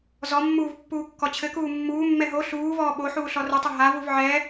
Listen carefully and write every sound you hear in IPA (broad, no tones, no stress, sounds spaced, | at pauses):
z ɔ mː uː v pː uː kː ɔ t͡ɕʰ ɘ k uː mː uː mː ɛ ɦ o ɬ uː v ɔː ɓ o ħ uː ɬ ɔ r ɘ tˤ ɘ ɦ a v u v ʕ ɛ